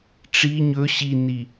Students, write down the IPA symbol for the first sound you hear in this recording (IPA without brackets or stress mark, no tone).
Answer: ʈ͡ʂ